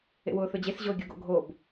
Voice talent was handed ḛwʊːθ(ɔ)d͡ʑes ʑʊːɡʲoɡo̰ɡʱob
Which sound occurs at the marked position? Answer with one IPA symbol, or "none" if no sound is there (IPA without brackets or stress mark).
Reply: ɵ